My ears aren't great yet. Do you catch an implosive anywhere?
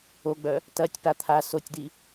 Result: no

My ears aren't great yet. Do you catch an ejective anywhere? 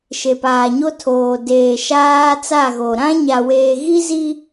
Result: no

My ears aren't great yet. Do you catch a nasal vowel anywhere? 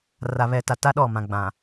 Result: yes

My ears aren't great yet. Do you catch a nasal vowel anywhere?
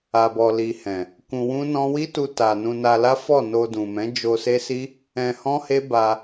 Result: yes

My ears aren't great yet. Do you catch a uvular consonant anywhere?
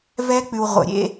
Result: yes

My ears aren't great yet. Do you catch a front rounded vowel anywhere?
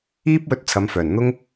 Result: yes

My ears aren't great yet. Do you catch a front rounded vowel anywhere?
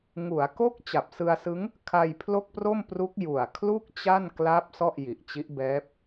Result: no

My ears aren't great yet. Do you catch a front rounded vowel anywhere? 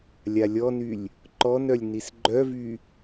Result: yes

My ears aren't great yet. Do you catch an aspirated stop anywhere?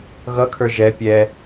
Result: yes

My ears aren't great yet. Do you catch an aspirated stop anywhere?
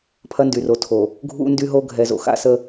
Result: yes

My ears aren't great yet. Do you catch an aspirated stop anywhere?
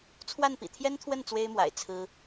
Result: yes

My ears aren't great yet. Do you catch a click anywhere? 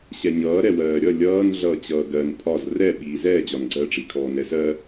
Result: yes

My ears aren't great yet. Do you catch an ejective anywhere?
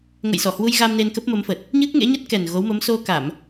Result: no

